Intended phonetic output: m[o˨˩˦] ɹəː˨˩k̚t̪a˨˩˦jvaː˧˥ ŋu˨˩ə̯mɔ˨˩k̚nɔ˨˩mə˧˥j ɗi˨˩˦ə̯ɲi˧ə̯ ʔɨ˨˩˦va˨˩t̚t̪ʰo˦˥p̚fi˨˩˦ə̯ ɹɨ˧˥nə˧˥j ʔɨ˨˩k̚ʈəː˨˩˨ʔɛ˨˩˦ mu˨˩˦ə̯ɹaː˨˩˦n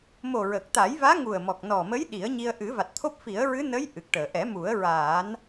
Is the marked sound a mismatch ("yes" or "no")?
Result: yes